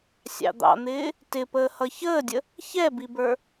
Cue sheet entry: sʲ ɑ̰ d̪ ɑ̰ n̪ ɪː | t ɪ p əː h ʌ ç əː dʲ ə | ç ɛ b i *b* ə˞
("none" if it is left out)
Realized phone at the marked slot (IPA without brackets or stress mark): b